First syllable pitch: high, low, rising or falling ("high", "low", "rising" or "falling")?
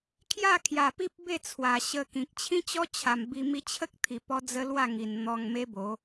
falling